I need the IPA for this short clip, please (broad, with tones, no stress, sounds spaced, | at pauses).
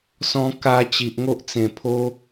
s ɔ̃˧ k a˧ t͡ɕ i˨ ʔ ŋ o˦ ʔ t͡s ẽ˨˩ pʰ o˦